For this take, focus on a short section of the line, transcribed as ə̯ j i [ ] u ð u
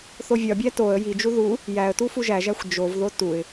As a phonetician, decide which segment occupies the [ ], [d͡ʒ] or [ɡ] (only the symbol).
d͡ʒ